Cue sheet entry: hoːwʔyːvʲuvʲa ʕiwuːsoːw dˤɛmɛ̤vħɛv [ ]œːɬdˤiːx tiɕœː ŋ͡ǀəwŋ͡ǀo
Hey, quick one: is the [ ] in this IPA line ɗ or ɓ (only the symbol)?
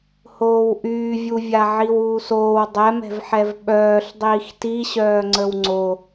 ɓ